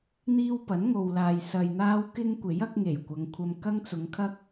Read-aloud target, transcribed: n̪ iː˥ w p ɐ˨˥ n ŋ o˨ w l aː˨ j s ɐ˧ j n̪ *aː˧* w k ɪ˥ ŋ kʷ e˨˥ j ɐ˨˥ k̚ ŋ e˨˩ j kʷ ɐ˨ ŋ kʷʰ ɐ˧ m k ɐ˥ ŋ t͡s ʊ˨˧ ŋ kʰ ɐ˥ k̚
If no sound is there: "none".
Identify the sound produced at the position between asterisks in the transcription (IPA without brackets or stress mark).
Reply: aː˥